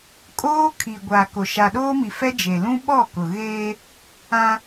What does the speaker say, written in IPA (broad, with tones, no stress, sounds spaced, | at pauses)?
kʼ oː˦ kʰ iː˨ ɡʷ aː˨ k o˨ ʃ a˨ ɗ oː˦ m i˨ f ɛ˦ d͡ʒ e˨ l ũ˦ ɓ ɔ˦˨ k ʊ˨ ɣ eː˦ | ã˦